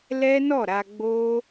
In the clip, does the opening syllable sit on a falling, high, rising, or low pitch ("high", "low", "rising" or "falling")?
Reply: high